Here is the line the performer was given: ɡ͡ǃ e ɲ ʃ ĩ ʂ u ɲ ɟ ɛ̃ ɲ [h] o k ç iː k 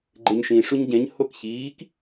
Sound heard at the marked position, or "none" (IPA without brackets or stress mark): h